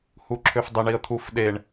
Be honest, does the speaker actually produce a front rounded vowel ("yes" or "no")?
yes